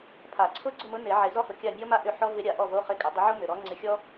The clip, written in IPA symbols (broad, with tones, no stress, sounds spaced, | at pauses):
pʰ a˨˩˦ ǀʰ ʊ˧˥ ɡ͡ǀ ʊ˥˨ m ʊ˧˥ n e˨˩˦ ʕ e˨˩˦ z ɔ˧˥ h ʊ˨ kʲ a˥˨ mʲ ɔ˥ m a˥ ʔ ʏ˥˨ ħ ɔ˥ v ɪ˧˥ ɾʲ a˨˩˦ ʔ ɔ˥˨ v o˧˥˧ χ ɪ˧˥ kʼ ɪ˨˩˦ dˤ ɪ˧˥ ʕ o˥ m ʏ˨ ɾ ɔ˧˥ ŋ͡ǀ ɪ˧˥ xʲ ɔ˥